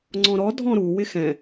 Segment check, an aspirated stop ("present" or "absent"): absent